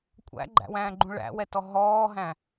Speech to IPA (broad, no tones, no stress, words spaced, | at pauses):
kʷʼæ̰ɡ͡ǃæ̰wæ̃ːɡ͡ǃũ ɭæ̰wɛtɔ ɦɔːɦæ̃